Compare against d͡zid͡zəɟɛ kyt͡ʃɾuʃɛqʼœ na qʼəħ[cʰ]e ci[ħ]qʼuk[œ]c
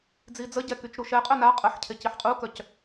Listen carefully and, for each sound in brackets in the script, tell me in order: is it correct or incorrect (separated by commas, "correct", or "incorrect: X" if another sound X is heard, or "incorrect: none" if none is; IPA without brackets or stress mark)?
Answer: correct, correct, correct